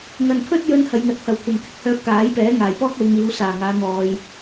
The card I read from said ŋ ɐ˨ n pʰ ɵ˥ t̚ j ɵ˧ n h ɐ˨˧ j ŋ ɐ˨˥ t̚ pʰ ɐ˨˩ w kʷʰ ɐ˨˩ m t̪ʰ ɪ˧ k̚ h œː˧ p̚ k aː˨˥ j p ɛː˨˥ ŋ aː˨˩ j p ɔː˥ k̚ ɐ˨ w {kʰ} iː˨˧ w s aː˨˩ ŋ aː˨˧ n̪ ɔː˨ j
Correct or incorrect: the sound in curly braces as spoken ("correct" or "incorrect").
incorrect